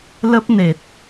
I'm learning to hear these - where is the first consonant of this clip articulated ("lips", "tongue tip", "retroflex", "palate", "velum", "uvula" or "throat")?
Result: tongue tip